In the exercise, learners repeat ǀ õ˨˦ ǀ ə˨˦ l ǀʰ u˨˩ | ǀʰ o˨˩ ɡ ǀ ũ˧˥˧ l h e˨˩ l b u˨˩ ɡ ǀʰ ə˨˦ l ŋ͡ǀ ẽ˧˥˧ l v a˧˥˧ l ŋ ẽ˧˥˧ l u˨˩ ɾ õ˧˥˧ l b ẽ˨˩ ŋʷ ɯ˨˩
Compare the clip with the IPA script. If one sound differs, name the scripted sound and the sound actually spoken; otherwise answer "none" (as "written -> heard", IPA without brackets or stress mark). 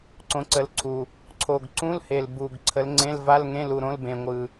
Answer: none